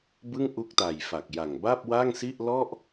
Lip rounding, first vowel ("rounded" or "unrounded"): unrounded